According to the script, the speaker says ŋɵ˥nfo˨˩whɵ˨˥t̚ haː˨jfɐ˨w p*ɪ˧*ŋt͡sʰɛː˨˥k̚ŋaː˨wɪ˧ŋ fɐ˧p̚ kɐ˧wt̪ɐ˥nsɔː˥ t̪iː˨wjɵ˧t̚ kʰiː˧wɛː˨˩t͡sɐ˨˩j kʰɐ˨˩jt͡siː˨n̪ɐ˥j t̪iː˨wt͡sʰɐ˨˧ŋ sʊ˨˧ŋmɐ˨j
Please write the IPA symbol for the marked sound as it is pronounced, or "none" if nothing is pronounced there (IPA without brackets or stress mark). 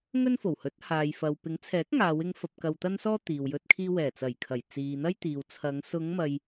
ɪ˨˥